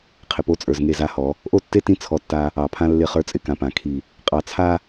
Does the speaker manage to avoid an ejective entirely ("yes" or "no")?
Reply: no